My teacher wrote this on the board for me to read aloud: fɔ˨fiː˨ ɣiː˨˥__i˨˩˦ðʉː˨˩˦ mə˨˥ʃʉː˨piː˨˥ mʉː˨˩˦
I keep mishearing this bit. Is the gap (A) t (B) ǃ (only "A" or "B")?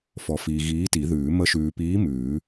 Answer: A